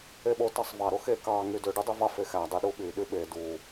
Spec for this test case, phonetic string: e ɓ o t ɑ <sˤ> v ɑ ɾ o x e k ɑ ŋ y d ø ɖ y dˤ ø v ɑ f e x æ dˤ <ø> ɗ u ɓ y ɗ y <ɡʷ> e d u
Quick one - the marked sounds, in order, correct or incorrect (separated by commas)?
correct, incorrect, incorrect